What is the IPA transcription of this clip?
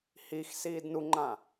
hix siːdnuŋ͡ǃã

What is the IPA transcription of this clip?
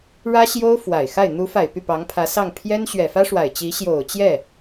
ɻä˥ɕjo˥ʊ̯ fwa˨˩ɪ̯xa˥˩ɪ̯ n̪u˧˥fa˨˩ɪ̯ py˥˩pɑ˧˥ŋpʰä˧˥sɑ˥˩ŋ pʰjɛ˥nɕɥɛ˨˩fä˥ ʂwa˨˩ɪ̯t͡ɕi˧˥ ɕjo˨˩ʊ̯t͡ɕjɛ˥˩

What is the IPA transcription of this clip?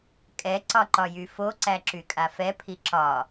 kʼɛǀɒǃɒjy fo ǀæǁykʼafɛ pʰiǁɒ

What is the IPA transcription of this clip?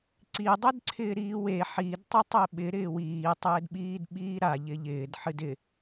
ǀi dˤɛdǀʰɪːɾiːwe ħid tˤɨtˤeɓɪ ɾɪːwiː tˤɪːdɓiːdɓiːɾa ʎɪʎɪːd ħɨdɪ

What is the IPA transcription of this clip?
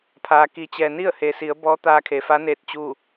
pʰaː˩ki˩˧t͡ɕɛː˩ ni˥˨ə̯heː˩si˩˧ə̯ bɔː˧˥t̪aː˧kʰe˩fa˧˥ neː˥˨t̚t͡ɕuː˥˨

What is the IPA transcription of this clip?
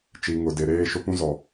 t͡ʃi˨ ŋʊ˨de˨ɾeː˦ ʃʊ˦pũ˦zɔ˨

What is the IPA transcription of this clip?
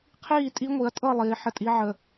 qʰiː˥˧tʼi˦˥ ŋʷi˨˦ɐ̯tʼɤ˥˧ lˠiː˨˦ħə˥˧tʼi˦˥ ʕə˥˧

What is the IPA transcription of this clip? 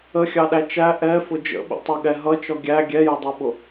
əxʲɑɗæ t͡ʃæ ʔɛfʊ d͡ʒə̰ɓḭtˤuɠɛ ɦʌt͡ʃɔ ɡʲæ ɡʲɛjədˤuɓʊ

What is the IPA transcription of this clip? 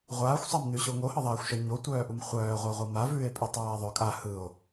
ʁʷaːxʷsˤamnʉɕo ŋohɤðˤaːxʷʃœ ɲotʷœːʔum χʷœːʁʷœʁʷɤ mavʉːe̯pʼʉtˤaː ðˤœ kʼa hɯo̯

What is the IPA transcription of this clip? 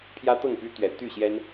pʰjä˦t̪ɤ˥˨ŋpy˦ t̪ɥɛ˨˦t̪y˥˨ɕjɛ˦n

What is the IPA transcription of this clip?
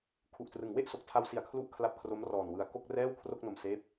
kʰu˨˩ʔtrɯ˩˦ŋ we˥˩ʔso˨˩k̚tʰa˧wsi˨˩a̯ kʰlu˥˩ʔkʰla˦˥p̚kʰro˦˥m rɔː˨˩nwɯ˧a̯ ko˥˩k̚rɛː˥˩w kʰro˥˩k̚no˧m seː˥˩p̚

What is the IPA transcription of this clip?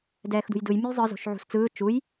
dɛːxdṳjdɯj mʲujzˤɯ zo̤ʃʕṳst͡sɯː t͡ʃuj

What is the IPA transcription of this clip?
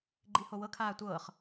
ɡ͡ǃihowɤkʰaː tʷɤːχ

